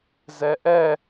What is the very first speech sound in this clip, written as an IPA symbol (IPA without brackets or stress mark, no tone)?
z